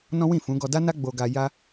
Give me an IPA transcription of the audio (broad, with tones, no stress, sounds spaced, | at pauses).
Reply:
n ɔ̃˦ w ĩ˦˨ f ũ˨˦ ɡ ɔ˧ d a˦ n a˦ ɡ͡b o˧ ɡ a˧ j a˧